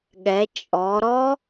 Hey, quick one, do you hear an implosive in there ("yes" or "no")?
yes